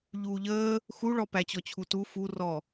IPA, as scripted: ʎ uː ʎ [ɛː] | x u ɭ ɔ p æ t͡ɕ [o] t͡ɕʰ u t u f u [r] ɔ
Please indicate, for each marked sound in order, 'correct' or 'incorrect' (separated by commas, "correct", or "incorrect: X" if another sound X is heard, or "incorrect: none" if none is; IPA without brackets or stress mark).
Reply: incorrect: əː, incorrect: ɔ, correct